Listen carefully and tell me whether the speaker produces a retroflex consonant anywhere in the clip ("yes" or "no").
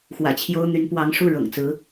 yes